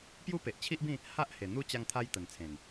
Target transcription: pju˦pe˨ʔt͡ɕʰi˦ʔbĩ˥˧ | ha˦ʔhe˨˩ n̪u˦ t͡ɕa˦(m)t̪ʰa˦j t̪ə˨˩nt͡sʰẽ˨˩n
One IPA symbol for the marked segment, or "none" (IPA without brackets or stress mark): ŋ